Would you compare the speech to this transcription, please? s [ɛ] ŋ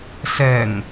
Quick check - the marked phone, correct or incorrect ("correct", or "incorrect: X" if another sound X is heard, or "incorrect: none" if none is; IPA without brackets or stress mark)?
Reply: correct